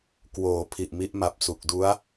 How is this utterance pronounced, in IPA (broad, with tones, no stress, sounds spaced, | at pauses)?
k w oː˩˦ pʰ i˨˩ ʔ m i˦˥ ʔ m a˨˩ p̚ s u˨˩ k̚ d u˦˥ a̯